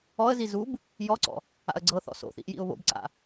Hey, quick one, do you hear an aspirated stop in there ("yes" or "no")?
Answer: no